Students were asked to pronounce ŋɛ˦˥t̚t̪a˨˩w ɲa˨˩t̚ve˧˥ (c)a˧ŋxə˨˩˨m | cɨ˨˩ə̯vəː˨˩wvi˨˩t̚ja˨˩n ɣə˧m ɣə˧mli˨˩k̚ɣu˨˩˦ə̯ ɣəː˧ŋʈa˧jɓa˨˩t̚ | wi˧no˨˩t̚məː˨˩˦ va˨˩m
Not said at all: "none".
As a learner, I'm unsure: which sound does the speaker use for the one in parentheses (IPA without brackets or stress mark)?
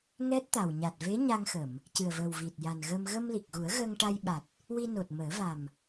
ɲ